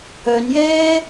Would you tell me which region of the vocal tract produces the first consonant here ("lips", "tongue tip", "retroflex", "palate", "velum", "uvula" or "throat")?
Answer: tongue tip